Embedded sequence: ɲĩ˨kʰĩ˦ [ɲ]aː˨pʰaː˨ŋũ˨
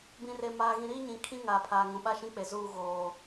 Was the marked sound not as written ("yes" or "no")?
yes